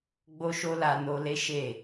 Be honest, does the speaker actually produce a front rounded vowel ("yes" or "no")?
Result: no